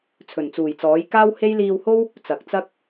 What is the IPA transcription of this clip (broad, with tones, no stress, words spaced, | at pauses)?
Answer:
t͡sʰɵ˨˩nt͡suː˨˩jt͡sɔː˨˥j kaː˥whe˥j liː˧who˥w | t͡sɐ˨k̚t͡sɐ˥k̚